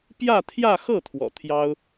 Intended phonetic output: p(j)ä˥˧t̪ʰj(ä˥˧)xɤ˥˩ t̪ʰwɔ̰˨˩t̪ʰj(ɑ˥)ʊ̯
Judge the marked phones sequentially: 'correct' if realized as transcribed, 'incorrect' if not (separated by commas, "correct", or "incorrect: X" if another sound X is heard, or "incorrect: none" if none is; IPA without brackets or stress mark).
correct, correct, correct